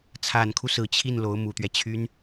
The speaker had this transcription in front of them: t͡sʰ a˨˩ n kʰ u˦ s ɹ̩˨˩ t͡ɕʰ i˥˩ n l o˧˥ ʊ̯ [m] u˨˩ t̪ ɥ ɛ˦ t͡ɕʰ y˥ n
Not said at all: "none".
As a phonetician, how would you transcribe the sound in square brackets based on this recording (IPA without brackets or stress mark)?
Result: m